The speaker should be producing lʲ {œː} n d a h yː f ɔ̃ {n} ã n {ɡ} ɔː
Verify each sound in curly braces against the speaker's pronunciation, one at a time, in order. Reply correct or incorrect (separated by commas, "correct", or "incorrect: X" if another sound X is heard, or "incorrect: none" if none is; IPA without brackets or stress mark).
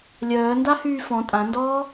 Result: correct, incorrect: tʼ, incorrect: d